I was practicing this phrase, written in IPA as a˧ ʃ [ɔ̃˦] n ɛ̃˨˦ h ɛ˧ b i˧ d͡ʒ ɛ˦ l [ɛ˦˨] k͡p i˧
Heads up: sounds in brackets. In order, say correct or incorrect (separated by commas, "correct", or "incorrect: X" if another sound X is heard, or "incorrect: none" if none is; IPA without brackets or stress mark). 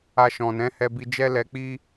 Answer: incorrect: ɔ̃˨, incorrect: ɛ˧